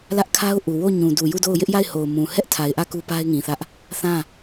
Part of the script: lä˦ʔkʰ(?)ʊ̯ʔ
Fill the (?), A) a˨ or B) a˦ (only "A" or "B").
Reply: B